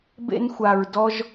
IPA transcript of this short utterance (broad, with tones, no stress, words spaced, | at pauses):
bḛ˧nxʷa˨ɹdɔ˧ʒ